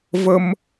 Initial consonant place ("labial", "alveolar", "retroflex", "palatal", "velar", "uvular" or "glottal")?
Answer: labial